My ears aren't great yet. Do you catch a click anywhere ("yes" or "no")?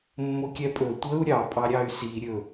no